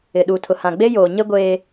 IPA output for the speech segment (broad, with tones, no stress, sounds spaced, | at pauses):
ɪ˨ ɗ u˨ tʰ ʊ˨ h ã˨ ɡ͡b e˦ j oː˨ ɲ e˦ ɡʷ eː˦